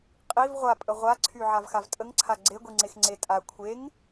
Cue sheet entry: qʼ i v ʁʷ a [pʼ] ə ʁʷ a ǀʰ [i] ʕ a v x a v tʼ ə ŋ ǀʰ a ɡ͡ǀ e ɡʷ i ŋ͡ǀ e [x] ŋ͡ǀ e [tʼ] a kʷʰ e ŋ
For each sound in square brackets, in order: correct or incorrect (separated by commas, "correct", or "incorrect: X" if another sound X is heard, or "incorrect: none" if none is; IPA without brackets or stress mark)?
correct, incorrect: y, correct, correct